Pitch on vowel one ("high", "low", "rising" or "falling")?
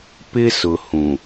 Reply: high